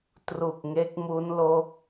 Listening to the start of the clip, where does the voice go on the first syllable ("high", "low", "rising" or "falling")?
low